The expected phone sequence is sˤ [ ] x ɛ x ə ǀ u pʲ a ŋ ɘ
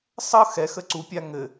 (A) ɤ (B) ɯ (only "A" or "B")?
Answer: A